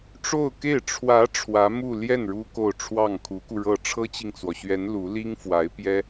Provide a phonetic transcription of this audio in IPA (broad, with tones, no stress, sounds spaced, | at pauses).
ʈ͡ʂ o˥˧ ʊ̯ k e˥˩ ɪ̯ ʈ͡ʂʰ w ä˧˥ ʈ͡ʂʰ w ä˧˥ m u˥˧ l j ɛ˥˩ n ɻ u˥ k o˥˧ ʊ̯ ʈ͡ʂʰ w ɑ˥˩ ŋ kʰ u˧˥ k u˧ ɻ ɤ˥˩ ʈ͡ʂʰ ɤ˥ t͡ɕ i˨ ŋ t͡s w ɔ˩ ɕ ɥ ɛ˧˥ n l u˧˥ l i˥ ŋ f w a˧˥ ɪ̯ p j ɛ˥